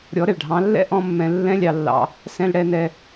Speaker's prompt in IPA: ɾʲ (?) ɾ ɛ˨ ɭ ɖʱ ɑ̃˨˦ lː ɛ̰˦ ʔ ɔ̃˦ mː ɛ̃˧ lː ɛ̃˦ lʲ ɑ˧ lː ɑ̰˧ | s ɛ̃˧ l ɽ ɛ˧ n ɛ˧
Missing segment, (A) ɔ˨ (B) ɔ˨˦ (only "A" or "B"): B